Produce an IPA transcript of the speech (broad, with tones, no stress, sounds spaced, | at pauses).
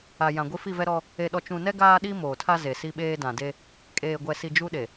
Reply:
a˨ j ã˨ ɡʷ i˦ f i˦˨ v ɛ˦ ɾ ɔ˦ | e˨ ɗ ɔ˨ t͡ʃ ũ˨ n ɛ˦ ɡ aː˦ ɗ i˦ m oː˨ tʰ a˦ z e˨ s i˦ ɓ eː˦ d ã˨ d e˦ | kʼ eː˨ ɡʷ ɛ˨ s i˨ d͡ʒ u˦ ɗ e˨